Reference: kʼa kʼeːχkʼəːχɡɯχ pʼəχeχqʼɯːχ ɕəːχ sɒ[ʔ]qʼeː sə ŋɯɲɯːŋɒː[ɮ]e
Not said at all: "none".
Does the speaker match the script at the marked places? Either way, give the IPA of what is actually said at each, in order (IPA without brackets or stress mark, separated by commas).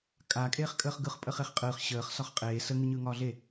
χ, ɮ